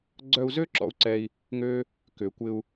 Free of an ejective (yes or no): yes